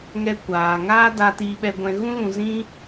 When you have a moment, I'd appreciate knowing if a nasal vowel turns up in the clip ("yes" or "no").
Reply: yes